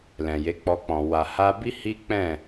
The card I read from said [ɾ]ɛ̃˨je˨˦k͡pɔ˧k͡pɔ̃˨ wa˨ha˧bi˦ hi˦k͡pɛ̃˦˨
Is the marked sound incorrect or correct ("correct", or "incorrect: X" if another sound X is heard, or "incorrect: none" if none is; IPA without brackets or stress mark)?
incorrect: l